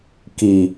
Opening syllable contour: low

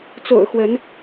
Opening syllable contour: low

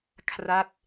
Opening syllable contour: falling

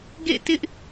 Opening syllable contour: falling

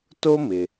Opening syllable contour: high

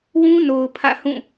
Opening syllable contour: high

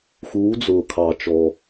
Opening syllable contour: rising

